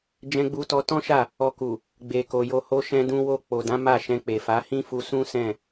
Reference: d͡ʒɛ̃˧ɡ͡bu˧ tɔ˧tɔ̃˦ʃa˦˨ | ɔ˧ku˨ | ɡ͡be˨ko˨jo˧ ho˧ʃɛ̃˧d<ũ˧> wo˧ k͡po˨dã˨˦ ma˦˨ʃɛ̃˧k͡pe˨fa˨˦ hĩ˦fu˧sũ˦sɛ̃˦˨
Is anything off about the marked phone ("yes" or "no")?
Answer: no